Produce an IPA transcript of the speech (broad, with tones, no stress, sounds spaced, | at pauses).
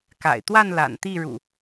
k a̰˨˩ ɪ̯ t̪ w a˥˨ n l a̰˨˩ n t̪ i˥˨ ɻ ṵ˨˩